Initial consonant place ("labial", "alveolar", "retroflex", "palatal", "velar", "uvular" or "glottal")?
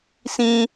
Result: alveolar